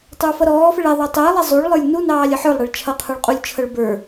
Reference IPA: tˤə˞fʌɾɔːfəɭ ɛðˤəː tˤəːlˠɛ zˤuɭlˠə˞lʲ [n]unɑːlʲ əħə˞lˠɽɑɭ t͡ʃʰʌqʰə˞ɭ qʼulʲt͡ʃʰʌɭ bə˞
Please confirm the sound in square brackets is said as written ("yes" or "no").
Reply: yes